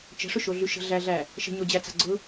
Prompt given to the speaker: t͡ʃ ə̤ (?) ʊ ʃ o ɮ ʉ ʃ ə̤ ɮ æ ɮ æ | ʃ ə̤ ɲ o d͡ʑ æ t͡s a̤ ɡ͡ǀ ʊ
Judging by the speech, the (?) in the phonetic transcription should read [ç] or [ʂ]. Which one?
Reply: ʂ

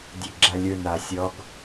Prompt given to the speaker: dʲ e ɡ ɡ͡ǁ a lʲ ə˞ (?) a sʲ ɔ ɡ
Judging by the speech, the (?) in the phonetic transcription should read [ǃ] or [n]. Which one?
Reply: n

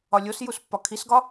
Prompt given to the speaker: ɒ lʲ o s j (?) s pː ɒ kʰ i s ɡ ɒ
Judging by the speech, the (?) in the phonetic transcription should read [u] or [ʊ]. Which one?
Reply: u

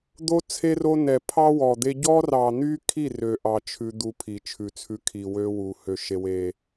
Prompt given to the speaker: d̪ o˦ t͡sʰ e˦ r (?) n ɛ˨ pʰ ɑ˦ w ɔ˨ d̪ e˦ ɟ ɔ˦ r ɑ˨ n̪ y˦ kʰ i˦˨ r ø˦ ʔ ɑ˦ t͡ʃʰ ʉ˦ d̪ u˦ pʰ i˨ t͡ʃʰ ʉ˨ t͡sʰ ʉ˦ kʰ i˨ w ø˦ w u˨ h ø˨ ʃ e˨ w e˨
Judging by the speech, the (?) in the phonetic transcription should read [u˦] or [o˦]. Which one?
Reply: o˦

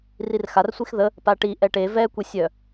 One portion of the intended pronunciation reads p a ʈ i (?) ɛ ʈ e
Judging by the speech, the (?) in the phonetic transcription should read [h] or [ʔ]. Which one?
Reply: ʔ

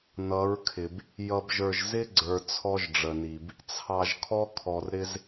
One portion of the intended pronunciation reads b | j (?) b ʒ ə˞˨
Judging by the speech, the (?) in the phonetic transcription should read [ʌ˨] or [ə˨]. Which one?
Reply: ʌ˨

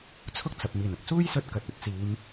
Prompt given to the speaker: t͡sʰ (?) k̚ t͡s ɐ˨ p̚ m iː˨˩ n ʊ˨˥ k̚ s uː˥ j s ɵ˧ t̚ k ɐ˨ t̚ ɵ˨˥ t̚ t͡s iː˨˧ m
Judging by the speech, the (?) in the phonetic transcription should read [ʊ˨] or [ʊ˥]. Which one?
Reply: ʊ˥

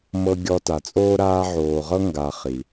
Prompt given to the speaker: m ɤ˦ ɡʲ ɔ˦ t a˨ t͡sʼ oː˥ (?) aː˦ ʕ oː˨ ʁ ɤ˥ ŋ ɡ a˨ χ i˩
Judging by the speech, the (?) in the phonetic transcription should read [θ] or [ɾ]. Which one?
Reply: ɾ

